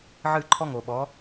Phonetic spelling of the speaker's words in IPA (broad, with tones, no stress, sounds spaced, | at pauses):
ʕ ɨ˦˨ ǃʰ ɔ˦ ŋ o˨ ɓ ɔ˨˦